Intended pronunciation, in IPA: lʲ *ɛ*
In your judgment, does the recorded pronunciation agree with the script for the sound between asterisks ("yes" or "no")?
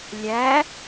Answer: no